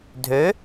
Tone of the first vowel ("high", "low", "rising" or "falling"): rising